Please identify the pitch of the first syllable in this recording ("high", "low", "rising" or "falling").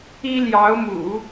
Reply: high